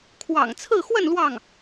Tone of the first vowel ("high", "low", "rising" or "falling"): low